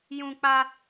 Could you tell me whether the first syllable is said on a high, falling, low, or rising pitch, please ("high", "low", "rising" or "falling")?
high